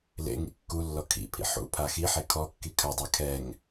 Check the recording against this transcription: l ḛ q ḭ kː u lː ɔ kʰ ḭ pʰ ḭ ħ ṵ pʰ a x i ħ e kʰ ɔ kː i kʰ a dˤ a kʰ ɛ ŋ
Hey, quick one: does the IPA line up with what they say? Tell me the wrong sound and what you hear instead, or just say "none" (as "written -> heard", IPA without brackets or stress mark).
q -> ŋ